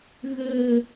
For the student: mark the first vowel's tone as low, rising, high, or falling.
low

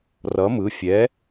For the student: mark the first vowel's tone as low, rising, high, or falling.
rising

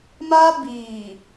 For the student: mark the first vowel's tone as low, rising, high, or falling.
high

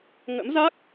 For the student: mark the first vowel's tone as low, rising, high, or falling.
rising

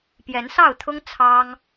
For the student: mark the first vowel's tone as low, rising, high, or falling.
rising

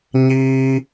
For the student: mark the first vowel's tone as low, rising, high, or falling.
high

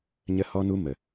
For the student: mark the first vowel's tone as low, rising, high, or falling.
high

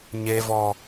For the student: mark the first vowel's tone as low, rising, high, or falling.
high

